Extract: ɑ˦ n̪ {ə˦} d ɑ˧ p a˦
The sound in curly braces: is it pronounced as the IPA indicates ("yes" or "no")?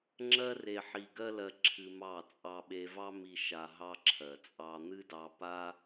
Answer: no